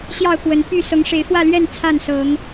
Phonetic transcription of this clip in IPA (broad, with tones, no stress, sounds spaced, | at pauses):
ɕ j ɑ˥˨ ʊ̯ k w ə˨˦ n p y˥˨ s ɤ˨˦ ŋ ʂ e˨˦ ɪ̯ f w ä˥˨ l ɥ ɛ˥˨ n t͡sʰ a˥˨ n s ɤ˨˦ ŋ